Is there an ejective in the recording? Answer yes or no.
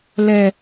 no